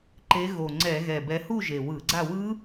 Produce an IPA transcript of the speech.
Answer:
ǃ e˨˦ ɣ o˨˩ ŋ͡ǀ ɛ˧˩˧ ɣ ɛ˨˩ b ɛ˨˦ h u˥˨ ʒ e˨˩ w ɯ˧˩˧ ɡ͡ǀ a˥˨ w ɯ˦˥

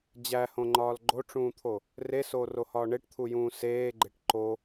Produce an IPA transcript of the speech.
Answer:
d͡ʑ æ h õ ŋ͡ǃ ɒː l ɡ͡ǃ o ʈ͡ʂ ũː t̪ʰ o | r e s oː r o h ɒː ɳ e ʈ t̪ʰ u j ũː s eː ɡ͡ǃ e ʈ ǃ o

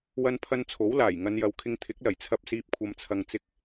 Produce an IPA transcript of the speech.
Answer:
w ɐ˧ n pʰ ɐ˧ n t͡sʰ o˨˥ w l aː˨˩ j ŋ ɐ˨˧ n j ɐ˨˧ w kʰ ɪ˧ ŋ t̪ʰ ɪ˨˥ k̚ l ɐ˨˩ j t͡sʰ ɐ˧ p̚ s iː˧ p̚ kʷʰ ɐ˧ m t͡sʰ ɐ˧ ŋ t͡s ɪ˧ k̚

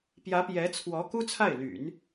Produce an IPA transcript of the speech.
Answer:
p j ä˧˥ p j ɛ˧˥ t͡sʰ w ɔ˧˥ k u˥ t͡sʰ a˥˩ ɪ̯ l y̰˨˩˦ n

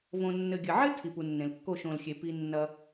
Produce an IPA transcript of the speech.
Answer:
v õ˧ nː ɘ˨ ɡʲ ɘ˨ ʕ ɘ˦ tʰ i˨ p u˨ nː ẽ˨ l kː o˦˨ ʃ õ˨ l xʲ e˨ p i˧ nː ɐ˧

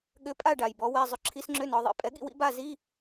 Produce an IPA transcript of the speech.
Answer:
ɠ ʏ˧˥ pʼ a˥˨ ɖ a˨˩ j b ɔ˩˥ w ɛ˧˥˧ zˤ ʏ˧˥ ǁʰ i˧˥ s ŋ͡ǁ ʏ˧˥˧ n ɔ˩˧ ðˤ ḭ˩˥ pʼ ɛ˩˥ ɠ ḭ˥˨ w ḭ˧˥˧ b a˥˨ z i˧˥˧

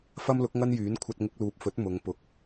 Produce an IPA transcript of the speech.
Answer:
f ɐ˥ m l ʊ˨˥ k̚ ŋ ɐ˥ n j yː˨˥ n kʷʰ ɐ˧ t̚ ŋ ɪ˧ k̚ l uː˨ p̚ f ɵ˨˥ t̚ m ʊ˨˧ ŋ p ʊ˨˥ k̚

